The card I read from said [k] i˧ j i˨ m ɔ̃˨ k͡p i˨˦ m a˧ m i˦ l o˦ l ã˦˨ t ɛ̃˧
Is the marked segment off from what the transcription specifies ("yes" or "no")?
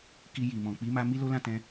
no